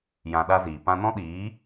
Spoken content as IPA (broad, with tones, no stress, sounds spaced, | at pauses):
j ã˧ ɗ a˦ z iː˨ p ã˧ n ɔ̃˦ ɗ iː˨˦